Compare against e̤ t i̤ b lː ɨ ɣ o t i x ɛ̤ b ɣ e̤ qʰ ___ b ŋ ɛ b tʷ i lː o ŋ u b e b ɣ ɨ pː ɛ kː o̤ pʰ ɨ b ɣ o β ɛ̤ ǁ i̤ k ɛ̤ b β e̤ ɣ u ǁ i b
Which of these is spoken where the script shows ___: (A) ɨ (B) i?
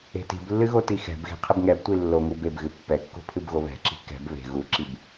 A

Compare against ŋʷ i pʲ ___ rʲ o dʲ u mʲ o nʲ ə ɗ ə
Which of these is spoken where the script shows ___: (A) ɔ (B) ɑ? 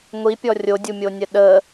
A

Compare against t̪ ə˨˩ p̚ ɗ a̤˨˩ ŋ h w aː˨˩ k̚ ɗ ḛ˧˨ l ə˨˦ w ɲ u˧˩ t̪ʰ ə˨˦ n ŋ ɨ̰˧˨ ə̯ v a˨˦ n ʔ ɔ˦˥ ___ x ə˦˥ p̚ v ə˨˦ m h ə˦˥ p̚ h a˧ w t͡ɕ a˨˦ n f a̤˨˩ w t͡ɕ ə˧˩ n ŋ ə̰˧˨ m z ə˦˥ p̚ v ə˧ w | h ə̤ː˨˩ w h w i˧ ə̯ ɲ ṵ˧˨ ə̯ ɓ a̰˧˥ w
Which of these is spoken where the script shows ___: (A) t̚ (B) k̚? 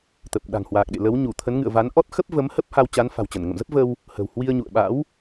A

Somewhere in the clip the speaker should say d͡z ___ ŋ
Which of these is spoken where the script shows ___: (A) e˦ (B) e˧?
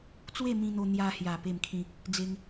A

